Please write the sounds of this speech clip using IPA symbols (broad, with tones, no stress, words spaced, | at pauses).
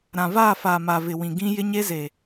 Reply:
ɾã˨vaː˦˨faː˨ma˨ vɪ˨wĩ˨ɡĩ˦ jɪ˦ɲe˦ze˨